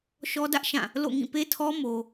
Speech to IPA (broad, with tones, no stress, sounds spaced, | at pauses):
ʃ ɔ˦ d ä˦ ʔ ʃ ã˦˨ | l o̰˦˨ ŋ ĩ˦˨ p e˦ tʰ ɔ˦ m o˦